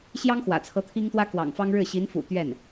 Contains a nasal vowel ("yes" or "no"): no